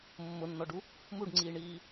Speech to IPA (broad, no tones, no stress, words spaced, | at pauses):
mːʊnːɔɖu | muɖŋ͡ǀiːɳiː